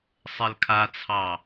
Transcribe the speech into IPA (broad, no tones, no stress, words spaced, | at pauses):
sˤɛlkʰat͡sʰɑ